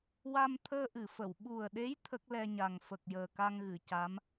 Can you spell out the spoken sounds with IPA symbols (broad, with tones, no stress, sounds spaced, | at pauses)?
w a˧ m t̪ʰ əː˧ ʔ ɨ˨˩˨ f ə˨˩˨ w ɓ u˨˩ ə̯ ɗ e˧˥ j t̪ʰ ə˦˥ k̚ l ɛ˧ ɲ a˨˩ ŋ f ə˨˩ k̚ j əː˨˩ k a˧ ŋ ɣ ɨ˨˩˨ c a˧˥ m